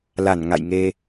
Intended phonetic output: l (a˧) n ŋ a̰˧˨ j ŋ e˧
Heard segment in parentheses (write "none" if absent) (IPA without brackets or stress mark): a˧˩